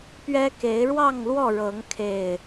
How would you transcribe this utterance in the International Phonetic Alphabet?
p ɥ ɛ˦ k e˨˦ ɪ̯ ɻ w ɑ˥˨ ŋ l w ɔ˥˨ ɻ ɤ˨˦ ŋ kʰ e˨˩ ɪ̯

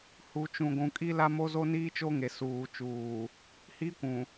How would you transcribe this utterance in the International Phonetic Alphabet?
h u˨ t͡ʃ ũ˨ ɡʷ ũ˨ kʼ i˦ l a˦ m o˦ z o˦ n iː˦ t͡ʃ o˦ ŋ e˨ s uː˨ t͡ʃ uː˨ | h i˦ kʷ ũ˨

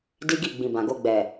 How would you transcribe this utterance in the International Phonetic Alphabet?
d i˦ ɡ i˦˨ ɡ͡b ĩ˨ b ã˨ ɡ o˧ ɡ͡b ɛ˨

